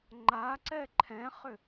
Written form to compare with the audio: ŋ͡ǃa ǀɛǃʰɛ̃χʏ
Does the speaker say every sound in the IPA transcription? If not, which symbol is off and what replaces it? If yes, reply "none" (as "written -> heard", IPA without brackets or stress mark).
none